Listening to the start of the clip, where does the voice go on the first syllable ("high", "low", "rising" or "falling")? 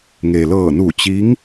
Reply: low